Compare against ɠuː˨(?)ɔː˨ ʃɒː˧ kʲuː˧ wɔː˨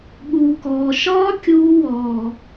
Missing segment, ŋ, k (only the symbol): k